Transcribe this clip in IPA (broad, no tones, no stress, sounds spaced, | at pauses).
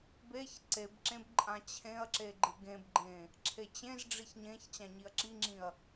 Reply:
b e ç ǀ e b ǁ ẽ b ǃʼ ã t͡ɕʰ ẽ ɐ̯ ǁ e ɡ͡ǃ ɨ ɡ ẽ b ɡ͡ǃ ẽ | ǁʰ e t͡ɕ ẽ z ɖ͡ʐ i ç ɲ ẽ ç t͡ɕ ã ɲ i ɐ̯ ǁ i ŋ͡ǁ ĩ ɐ̯